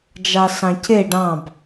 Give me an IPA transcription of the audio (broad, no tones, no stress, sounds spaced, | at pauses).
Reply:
d͡ʒ ɑ s ɑ̃ c e ɖ ɑ̃ b